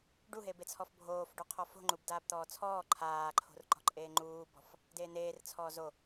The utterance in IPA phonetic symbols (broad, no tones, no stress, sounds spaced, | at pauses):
ɖ u ɦ e b e t͡sʰ ɔ f bʱ oː f ɖ u qʰ ɔ f o̤ ŋ͡ǃ u b d aː b t̪ ɔː t͡sʰ ɔː ǃʰ aː ǃʰ o̤ r ǃ ɔ̤ ǃʼ eː ŋ͡ǃ uː b ɔ̤ f | d eː n̪ eː r t͡sʰ ɔː z o